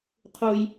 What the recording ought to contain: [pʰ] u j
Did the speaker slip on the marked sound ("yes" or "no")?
yes